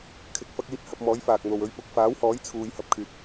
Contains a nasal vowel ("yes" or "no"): no